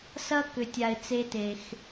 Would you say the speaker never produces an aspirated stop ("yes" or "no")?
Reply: yes